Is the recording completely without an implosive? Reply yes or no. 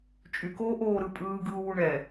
yes